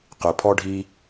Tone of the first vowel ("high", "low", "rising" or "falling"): low